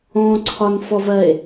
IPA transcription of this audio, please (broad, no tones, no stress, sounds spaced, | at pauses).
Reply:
ɔ̃ ǀʰ ɒ n f ɔ v ɜ e̯